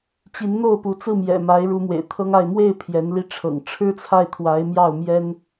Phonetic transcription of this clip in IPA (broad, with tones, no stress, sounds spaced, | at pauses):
t͡ɕ i˧˥ n n̪ o˥˩ ʊ̯ p u˧˥ t͡s ɹ̩˥˩ m j ɛ̰˨˩ m a˧˥ ɪ̯ ɻ u˧˥ m w ḛ˨˩ ɪ̯ t̪ʰ ɤ˥ ŋ a˥˧ ɪ̯ m w e˥˩ ɪ̯ pʰ j ɛ˧˥ n l i˥ ʈ͡ʂʰ ɤ̰˨˩ ŋ ʈ͡ʂʰ ɻ̩˥ t͡sʰ a˥˩ ɪ̯ t̪ʰ w a˧˥ ɪ̯ m j ɑ˥˩ ʊ̯ m j ɛ˥ n